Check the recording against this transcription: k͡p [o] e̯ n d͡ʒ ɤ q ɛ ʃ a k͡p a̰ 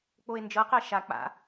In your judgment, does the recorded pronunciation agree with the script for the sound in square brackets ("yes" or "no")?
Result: yes